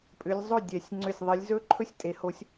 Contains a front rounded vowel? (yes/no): yes